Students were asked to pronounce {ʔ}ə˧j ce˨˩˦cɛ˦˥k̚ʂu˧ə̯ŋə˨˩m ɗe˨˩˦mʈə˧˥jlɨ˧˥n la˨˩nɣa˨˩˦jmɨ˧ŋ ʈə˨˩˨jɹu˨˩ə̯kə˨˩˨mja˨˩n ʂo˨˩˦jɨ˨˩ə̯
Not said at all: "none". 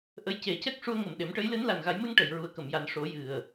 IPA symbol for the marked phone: ʔ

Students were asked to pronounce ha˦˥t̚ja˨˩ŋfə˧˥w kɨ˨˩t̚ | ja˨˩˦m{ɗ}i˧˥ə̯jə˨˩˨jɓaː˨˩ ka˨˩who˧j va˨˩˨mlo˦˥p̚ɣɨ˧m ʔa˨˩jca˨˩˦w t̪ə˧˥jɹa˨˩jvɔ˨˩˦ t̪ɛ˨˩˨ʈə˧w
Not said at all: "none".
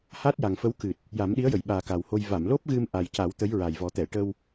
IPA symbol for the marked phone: ɗ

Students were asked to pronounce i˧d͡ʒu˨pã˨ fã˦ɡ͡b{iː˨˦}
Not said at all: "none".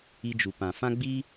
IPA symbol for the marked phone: iː˦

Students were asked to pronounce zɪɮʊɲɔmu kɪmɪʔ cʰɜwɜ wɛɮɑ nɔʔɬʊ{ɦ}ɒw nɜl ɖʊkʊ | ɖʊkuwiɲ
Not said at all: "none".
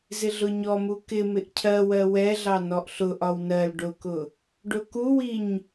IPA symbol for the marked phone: ʔ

